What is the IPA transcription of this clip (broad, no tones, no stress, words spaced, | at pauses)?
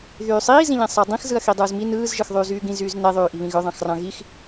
ðyːsˤiːzĩ ʎẽsˤædˤĩxzɯɐ̯ xidˤɯːzmi nɯːzʒɯx ðˤyːzyːɡĩz yːzneðˤyːʔi βĩɣøðˤɑ̃x rɑ̃ɣix